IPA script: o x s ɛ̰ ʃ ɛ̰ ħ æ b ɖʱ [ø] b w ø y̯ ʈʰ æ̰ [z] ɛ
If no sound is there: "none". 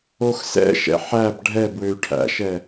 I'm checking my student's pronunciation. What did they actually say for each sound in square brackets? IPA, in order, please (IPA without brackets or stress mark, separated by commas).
ɛ, ʃ